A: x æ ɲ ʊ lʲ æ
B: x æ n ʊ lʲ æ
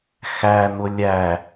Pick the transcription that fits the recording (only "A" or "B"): B